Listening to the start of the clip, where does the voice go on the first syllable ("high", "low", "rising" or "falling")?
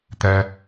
high